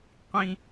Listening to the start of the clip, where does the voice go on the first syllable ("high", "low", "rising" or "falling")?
low